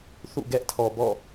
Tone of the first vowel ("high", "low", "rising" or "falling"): falling